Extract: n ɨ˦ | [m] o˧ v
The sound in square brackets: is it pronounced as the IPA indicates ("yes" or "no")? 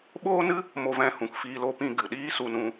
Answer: yes